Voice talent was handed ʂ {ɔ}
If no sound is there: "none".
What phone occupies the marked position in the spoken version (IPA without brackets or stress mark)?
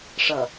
ʌ